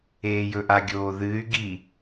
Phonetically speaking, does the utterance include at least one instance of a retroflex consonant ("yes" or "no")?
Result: no